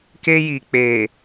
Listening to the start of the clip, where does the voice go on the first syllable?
high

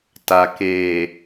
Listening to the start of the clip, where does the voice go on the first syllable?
low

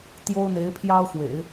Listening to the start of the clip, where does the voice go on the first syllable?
high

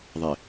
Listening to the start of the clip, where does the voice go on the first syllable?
low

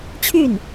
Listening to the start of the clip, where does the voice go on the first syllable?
falling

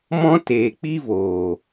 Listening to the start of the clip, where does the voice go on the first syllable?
high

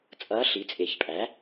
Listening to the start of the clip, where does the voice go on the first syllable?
rising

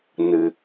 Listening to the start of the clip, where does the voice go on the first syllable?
low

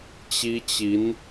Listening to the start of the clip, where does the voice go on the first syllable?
high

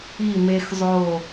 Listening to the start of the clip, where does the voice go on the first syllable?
falling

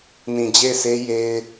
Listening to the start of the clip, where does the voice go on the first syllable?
low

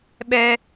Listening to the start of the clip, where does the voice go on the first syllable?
high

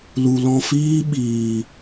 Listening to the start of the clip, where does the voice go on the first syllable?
low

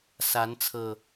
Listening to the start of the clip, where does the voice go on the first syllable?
rising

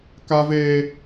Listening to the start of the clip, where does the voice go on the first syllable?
high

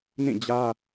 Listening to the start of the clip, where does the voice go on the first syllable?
falling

